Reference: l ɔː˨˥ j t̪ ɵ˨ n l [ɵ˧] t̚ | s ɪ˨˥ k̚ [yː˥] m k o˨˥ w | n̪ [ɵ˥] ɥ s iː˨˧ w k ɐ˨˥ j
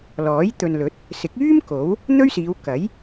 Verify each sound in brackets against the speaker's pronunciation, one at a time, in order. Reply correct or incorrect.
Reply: incorrect, correct, correct

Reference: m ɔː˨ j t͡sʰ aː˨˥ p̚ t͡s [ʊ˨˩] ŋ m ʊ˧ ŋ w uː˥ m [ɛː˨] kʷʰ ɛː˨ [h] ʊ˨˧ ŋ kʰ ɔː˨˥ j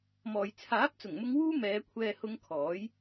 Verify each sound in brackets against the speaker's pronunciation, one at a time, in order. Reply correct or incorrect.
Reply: correct, incorrect, correct

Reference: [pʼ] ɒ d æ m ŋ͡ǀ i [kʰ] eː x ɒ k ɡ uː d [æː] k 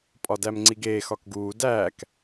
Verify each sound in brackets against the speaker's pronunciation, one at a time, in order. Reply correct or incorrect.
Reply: correct, incorrect, correct

